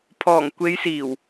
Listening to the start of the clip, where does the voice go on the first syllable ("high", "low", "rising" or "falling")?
low